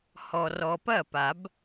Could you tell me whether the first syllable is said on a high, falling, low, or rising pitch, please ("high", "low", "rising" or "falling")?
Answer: low